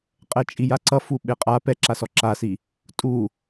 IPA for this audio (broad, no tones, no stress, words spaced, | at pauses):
qʼɛt͡ʃʼijaǀʌ fuɓeqʼa pɛǁasɔ ǁasi | tʼu